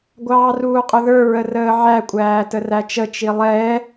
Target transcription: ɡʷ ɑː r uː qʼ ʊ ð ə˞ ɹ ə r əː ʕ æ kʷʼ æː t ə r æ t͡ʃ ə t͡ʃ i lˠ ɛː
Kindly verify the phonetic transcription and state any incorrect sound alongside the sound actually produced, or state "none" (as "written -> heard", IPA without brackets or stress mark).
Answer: none